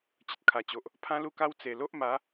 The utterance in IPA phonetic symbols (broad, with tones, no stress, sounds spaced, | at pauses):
t͡ɕ ə˨ t̚ kʰ a˨˩ t͡ɕ o˨ ʔ | pʰ ã˦ l u˥˧ k a˦ w t͡s e˨˩ l o˦ ʔ m a˨˦